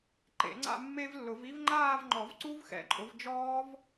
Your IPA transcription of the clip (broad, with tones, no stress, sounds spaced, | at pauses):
ǃ ḛ˨˩˦ ŋ͡ǀ a̰˥˧ mː e˦˥ v lː ʊ˨˩˦ v i˦˥ v ŋ͡ǃ aː˥˧ v ŋ͡ǃ ɔ˨˩˦ v ǀ u˦˥ v x ɛ̰˨˦ ǃʼ ʊ˨˦ v d͡ʒ ɔː˦˥ v